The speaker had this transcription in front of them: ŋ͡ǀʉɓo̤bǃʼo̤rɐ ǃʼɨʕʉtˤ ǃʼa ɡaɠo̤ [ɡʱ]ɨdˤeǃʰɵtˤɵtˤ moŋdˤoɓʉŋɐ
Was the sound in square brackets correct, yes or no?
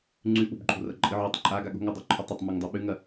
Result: no